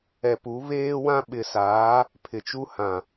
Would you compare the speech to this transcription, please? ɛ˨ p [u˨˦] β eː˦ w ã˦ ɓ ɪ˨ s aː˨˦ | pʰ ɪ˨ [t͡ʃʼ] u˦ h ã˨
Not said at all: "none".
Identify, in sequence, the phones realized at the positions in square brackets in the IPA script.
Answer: u˨˦, t͡ʃ

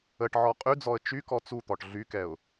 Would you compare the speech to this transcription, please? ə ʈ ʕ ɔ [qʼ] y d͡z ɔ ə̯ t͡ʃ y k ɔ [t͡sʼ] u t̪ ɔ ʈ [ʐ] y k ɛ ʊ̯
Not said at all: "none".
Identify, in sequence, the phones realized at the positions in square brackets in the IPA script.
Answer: qʼ, t͡s, ɮ

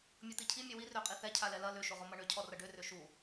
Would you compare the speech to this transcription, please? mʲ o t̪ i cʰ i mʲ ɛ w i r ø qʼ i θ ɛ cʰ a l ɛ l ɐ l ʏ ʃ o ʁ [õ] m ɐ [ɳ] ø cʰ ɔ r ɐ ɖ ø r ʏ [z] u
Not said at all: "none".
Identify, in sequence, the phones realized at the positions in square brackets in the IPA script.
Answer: o, ɳ, ʃ

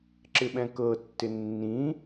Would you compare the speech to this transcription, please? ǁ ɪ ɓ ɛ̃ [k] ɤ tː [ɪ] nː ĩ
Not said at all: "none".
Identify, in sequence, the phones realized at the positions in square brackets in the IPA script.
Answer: k, ɪ

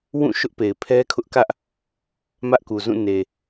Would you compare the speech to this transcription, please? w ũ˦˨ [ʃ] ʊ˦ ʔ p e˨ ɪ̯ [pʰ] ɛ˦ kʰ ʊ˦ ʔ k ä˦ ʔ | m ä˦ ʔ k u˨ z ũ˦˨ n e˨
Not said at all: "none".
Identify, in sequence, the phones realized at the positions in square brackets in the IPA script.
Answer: ʃ, pʰ

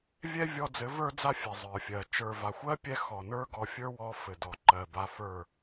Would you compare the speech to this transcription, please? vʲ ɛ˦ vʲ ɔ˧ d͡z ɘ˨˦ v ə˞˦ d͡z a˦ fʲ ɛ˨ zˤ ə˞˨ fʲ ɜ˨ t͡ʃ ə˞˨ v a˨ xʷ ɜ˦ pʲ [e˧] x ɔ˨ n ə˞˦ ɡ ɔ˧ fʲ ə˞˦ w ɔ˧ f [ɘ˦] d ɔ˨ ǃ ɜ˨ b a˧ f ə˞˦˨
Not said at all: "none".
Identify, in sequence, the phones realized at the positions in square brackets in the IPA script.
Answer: ɛ˧, ɘ˨

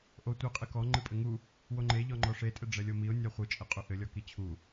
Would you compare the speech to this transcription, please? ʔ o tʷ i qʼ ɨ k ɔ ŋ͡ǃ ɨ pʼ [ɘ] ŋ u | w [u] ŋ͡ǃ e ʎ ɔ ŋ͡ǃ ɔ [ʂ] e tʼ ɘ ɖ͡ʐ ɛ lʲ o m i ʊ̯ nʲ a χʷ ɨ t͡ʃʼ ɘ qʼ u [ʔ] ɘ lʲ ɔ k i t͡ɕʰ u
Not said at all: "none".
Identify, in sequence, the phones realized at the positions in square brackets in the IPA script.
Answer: ɘ, o, ʂ, ʔ

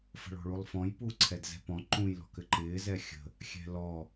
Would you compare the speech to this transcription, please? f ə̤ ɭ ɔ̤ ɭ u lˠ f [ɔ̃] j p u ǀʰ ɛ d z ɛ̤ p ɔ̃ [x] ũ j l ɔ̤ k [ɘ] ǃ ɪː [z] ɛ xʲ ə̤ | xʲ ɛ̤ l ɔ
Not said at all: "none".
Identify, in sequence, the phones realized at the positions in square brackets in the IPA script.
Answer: ɔ̃, ǃ, ɘ, z

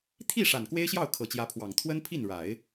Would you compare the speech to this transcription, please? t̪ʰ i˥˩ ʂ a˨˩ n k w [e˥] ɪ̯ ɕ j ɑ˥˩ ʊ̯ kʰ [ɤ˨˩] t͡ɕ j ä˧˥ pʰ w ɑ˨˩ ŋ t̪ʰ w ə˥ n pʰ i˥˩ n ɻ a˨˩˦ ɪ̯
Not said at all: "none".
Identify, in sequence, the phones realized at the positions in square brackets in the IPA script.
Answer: e˥, ɤ˨˩

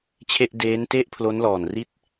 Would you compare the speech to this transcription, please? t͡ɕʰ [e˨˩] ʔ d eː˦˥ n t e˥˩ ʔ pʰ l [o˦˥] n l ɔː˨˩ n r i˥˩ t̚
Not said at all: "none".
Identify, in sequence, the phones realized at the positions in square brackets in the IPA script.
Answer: e˥˩, o˦˥

